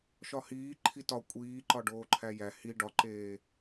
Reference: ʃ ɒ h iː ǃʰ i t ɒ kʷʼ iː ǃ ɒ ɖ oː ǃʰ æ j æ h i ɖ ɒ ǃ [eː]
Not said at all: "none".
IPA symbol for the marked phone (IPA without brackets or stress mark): eː